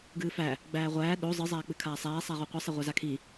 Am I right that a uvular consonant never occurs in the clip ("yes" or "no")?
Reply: no